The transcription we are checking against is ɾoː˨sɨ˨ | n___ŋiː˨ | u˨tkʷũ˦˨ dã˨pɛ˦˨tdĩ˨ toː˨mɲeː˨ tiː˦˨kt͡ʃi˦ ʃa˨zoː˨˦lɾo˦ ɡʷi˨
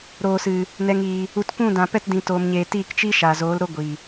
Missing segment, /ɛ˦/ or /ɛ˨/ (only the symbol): ɛ˨